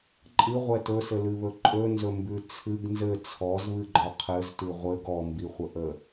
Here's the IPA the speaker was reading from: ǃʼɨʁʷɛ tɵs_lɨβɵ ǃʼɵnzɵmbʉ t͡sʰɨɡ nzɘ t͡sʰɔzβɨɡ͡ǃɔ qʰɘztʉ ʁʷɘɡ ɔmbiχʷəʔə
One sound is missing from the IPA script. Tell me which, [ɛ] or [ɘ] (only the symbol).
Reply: ɘ